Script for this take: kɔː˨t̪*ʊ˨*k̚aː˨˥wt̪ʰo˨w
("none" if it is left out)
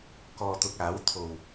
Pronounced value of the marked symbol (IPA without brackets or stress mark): ʊ˨